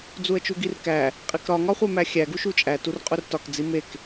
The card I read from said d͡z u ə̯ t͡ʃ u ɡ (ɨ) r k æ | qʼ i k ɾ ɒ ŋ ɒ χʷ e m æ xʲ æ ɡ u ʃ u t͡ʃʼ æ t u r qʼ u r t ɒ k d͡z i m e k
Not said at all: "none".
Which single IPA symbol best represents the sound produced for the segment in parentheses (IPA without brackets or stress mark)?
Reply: i